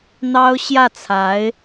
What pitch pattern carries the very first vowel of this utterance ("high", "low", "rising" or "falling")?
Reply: high